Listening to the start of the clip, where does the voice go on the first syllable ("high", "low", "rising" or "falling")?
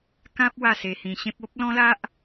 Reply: high